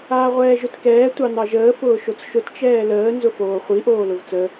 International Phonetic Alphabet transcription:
aː ʁʷ ɛː ʒ ʊ t k ɛː tʷ ɑ n ɑ ʒ əː f ʊː ʃ o t͡s ʃ ʊ t t͡ʃ ɛː l əː n z ʊ f oː χʷ i ʔ oː l ʊ v t͡s ə

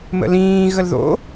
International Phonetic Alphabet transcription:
m ə̰ l ĩː ɣ ə l ð o̰

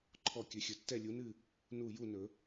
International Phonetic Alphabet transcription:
ǃʰ ɔ˥˩ kʲ ɵ˩˥ xʲ ɵ˩˥ tː ɛ˥˩ lʲ u˩˥ n ɨ˥˩ | n u˥˩ j u˥˩ n ɵ˨˩˦

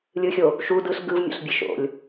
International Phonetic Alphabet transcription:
lʲ ɯ xʲ o | ʃ u d ɯ ɬ ɡ ɯ v mʲ o̰ ɬ bʲ e ʃ o̰ lʲ

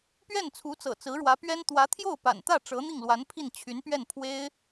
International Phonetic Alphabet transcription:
p ɥ ɛ˥˩ n t͡sʰ u˧˥ t͡s ɤ̰˨˩ t͡s ɹ̩˧˥ ɻ w ä˧˥ p ɥ ɛ˥ n t̪ w ä˧˥ t̪ʰ j o˥˩ ʊ̯ p a̰˨˩ n t̪ ä˥˩ ʈ͡ʂ ɤ˧˥ n̪ i˥˩ ŋ l w a˧˥ n pʰ i˥˩ n t͡ɕʰ y˧˥ n p ɥ ɛ˥˩ n pʰ w e˥ ɪ̯

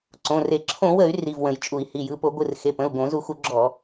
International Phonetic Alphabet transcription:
ǀ õ˩˧˩ r e˧˩˧ ǁʰ õ˧˩˧ w ə˧˩˧ y̯ r i˩˧˩ v w ə̃˧˩˧ j t͡ʃʼ u˧˩˧ i̯ h i˩˧˩ j ɯ˩˧˩ p o˧˩˧ ɡʷ ɯ˩˧˩ r x e˩˧˩ p ə̃˩˧˩ u̯ ɡ õ˧˩˧ z u˧˩˧ x u˧˩˧ ɡ͡ǁ ɔ˧˩˧

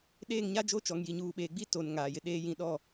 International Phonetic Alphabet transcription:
ɗ eː˦˨ ŋ ɲ a˦ d͡ʒ o˦ t͡ʃ ɔ˨ ŋ j i˨ ɲ uː˨ ɓ eː˨ ɡ͡b i˦ t o˨ n ŋ aː˨ j ɪ˨ ɗ eː˦ j ĩ˦˨ ɗ ɔ˦˨

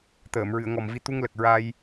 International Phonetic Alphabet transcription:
t̪ əː˨˩˨ m ɹ ɨ˨˩˨ ə̯ ŋ ɔ˨˩ m v i˧˥ t̪ u˧ ŋ l ə˨˩ k̚ ɹ a˧ j

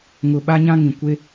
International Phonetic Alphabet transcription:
ŋ ʊ˨ ɓ a˦ ɲ ã˦ ŋ ĩ˨ kʷ e˦

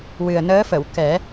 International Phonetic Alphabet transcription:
w ɨ˨˩ ə̯ n əː˧˥ f ə˨˩˨ w k ɛ˨˩˦

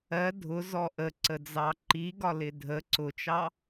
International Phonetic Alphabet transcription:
ɜ dʱ ʊ z ɔ ʔ ə ǀ ə d͡z ɑ ǃ i ɡ ɒ l ɪ dʱ ə ǀ ʊ t͡ʃ ɑ

